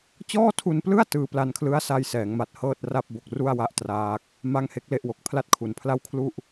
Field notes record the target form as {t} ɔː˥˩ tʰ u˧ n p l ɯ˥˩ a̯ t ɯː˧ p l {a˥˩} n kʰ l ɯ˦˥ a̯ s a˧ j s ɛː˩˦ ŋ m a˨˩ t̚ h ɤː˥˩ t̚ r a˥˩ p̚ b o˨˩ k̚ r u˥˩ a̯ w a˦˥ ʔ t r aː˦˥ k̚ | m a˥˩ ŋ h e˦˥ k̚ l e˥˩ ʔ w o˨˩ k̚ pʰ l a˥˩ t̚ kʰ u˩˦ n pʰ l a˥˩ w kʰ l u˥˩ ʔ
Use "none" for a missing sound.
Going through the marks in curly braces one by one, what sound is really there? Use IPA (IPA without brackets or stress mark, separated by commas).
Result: t͡ɕ, a˧